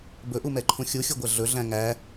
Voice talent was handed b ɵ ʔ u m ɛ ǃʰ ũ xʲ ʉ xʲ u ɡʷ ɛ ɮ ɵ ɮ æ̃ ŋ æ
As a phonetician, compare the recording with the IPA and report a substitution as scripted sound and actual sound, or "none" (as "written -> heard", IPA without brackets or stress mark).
ʉ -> u